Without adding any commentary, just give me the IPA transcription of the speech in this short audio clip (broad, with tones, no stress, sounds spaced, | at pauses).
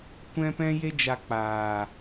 kʷ ɛ̃˦ p ɛ̃˦ j e˦ d͡ʒ a˧ k͡p aː˨